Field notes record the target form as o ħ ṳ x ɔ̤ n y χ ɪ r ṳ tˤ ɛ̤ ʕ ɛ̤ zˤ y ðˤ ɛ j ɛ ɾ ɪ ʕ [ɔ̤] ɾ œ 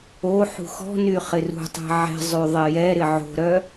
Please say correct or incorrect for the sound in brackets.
incorrect